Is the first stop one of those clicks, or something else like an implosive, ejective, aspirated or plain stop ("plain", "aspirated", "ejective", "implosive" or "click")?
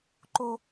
click